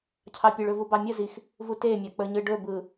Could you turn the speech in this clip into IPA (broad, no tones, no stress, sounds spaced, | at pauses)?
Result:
cʰ ɑ pʲ ɯ ɭ ɵ v u b ɑ mʲ ə z i x | v u t e mʲ a k͡p ə ɲ ɯ ɖ ɵ b ɯ